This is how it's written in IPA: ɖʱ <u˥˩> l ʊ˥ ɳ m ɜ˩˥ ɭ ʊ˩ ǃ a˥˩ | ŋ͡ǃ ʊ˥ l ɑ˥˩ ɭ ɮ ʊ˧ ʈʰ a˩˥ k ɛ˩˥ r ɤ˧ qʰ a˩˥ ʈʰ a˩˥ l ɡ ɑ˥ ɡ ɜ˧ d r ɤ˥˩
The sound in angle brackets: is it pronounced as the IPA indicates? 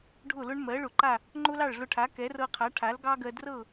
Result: no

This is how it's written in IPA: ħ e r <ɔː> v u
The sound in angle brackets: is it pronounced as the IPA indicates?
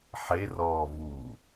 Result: yes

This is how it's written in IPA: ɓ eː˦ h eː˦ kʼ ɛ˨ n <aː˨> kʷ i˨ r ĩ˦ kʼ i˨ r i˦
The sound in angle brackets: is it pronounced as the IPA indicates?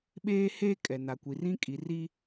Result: no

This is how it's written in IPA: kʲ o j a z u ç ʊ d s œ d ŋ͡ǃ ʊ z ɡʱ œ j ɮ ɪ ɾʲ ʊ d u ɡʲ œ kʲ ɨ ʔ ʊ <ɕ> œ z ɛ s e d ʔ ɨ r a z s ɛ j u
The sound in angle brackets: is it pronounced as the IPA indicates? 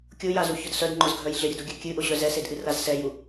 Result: yes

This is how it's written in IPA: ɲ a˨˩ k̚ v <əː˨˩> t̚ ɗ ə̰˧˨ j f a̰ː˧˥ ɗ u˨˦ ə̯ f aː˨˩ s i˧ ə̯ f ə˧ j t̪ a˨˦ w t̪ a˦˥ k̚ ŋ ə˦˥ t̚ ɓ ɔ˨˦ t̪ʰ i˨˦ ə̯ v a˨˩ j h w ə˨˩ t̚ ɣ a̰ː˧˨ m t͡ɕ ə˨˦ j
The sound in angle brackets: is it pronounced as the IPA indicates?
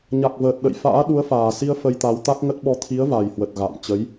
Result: yes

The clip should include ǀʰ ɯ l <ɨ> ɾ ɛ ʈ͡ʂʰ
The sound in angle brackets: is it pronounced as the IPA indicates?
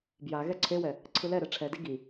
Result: no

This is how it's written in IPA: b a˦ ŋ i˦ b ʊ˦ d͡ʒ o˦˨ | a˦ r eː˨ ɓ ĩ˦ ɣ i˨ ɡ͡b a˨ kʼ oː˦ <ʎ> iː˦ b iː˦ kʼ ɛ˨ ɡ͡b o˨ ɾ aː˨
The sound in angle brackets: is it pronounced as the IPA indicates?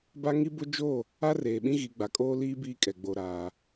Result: no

